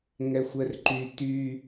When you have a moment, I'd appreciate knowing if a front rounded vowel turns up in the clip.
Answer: yes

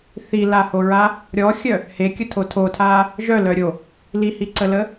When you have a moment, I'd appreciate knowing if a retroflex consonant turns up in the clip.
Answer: no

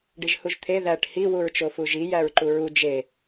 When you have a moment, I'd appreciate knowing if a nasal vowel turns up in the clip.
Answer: no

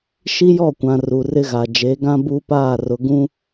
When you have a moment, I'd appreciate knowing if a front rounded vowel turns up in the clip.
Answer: no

